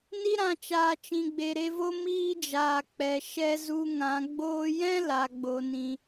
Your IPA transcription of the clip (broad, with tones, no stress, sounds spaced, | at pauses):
n i˧ ɾ ã˨ t͡ʃ aː˨ t͡ʃ ĩ˨ ɡ͡b e˨ ɾ e˧ v o˦ m iː˦ d͡ʒ aː˨ k͡p ɛ˨ ʃ ɛ˦ z u˧ ŋ ã˨˦ ɡ͡b oː˧ j ɛ̃˦ l a˨ ɡ͡b o˨ n ĩ˨